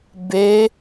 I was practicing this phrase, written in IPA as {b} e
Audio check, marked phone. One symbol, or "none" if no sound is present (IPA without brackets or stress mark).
b